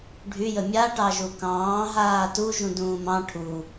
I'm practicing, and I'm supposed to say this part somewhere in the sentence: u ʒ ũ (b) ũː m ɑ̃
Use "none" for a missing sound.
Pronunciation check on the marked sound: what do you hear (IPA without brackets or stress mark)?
d